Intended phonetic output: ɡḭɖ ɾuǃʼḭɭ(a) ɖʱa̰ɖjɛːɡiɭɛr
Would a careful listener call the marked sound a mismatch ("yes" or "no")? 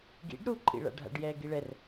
yes